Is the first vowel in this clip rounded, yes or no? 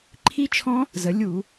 no